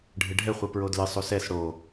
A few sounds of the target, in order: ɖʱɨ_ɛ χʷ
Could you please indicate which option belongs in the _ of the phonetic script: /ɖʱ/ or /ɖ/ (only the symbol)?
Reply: ɖʱ